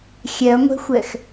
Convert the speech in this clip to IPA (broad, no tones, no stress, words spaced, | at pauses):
xʲɛɐ̯ŋʷɛ̤xʷɛx